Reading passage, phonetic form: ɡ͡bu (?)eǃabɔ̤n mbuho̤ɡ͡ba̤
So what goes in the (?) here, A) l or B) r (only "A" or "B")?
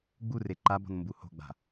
B